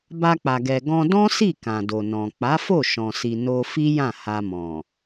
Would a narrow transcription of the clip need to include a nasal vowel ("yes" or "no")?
yes